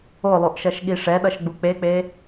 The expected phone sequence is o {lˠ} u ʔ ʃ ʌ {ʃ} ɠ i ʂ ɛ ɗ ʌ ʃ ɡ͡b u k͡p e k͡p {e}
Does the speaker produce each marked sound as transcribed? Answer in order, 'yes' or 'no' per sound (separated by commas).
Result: yes, yes, yes